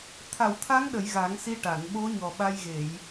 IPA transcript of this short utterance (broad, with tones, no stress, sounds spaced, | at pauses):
t̪ʰ a˨˩˨ w t̪ʰ a˧˥ ŋ ɗ ə˨˩˨ j ɣ a˨˩˦ ŋ s i˧ ʈ a˨˩˨ n ɓ o˧˥ ɲ ɔ˨˩ ɓ a˧ j ɣ e˨˩˨ j